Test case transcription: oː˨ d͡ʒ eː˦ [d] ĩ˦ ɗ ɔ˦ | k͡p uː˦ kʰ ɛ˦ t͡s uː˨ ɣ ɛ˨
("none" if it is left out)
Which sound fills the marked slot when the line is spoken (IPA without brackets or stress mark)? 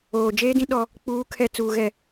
d